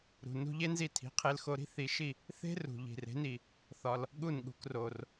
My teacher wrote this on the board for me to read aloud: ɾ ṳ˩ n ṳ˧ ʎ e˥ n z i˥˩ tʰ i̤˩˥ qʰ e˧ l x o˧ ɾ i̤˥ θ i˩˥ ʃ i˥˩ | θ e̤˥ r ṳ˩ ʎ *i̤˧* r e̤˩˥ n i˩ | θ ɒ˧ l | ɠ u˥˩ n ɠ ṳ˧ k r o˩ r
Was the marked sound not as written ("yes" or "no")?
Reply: yes